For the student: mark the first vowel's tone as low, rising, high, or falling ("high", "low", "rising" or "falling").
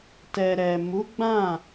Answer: low